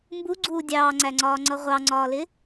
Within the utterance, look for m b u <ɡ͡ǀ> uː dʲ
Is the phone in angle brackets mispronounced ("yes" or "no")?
no